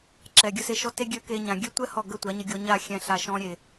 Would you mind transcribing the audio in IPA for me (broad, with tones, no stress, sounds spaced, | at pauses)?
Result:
ǁ ɛ˨ ɡʲ ə˧ s e˧ ʃ ɔ˦ t e˦ ɡʲ ø˧ k e˧ ɲ ã˨ ɡʲ ø˦ tʷ ɛ˦ h ɔ˦˨ ɡ ə˦˨ tʷ a˨˦ ɲ ə˧ ɡʲ ɔ˧ ɲ a˦˨ xʲ ɛ̃˨ ɬ a˨ ʃ ɔ̃˧ ɾʲ e˨